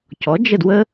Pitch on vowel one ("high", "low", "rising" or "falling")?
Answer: rising